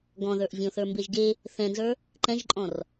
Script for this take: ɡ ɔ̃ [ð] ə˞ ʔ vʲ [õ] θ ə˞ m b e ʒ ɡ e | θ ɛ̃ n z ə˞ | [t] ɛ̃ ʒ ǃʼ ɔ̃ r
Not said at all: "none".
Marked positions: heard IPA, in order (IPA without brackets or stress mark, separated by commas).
ð, õ, ǃ